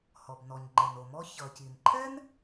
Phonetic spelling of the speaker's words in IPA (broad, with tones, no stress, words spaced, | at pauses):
hɔ˩bnɔ˩ɲŋ͡ǃɛ˩n o˩mɔ˦ çʌ˩ci˩nǃʰɛ˥n